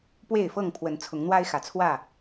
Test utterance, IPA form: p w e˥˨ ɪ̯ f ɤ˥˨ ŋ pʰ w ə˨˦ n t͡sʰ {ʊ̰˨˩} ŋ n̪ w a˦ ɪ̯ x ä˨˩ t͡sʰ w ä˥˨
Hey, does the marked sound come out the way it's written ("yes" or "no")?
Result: no